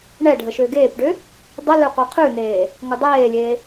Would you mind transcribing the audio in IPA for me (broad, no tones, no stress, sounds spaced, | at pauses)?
ɳ ɛ ɖʱ ə ʃ ø ɡ eː p ɖ ø | dˤ ə l ø qʷ ɜ qʰ ʉ n eː | ŋ ʊ dˤ eː lʲ eː